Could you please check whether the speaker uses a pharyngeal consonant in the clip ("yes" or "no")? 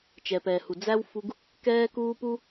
no